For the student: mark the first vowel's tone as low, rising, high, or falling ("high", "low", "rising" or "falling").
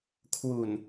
low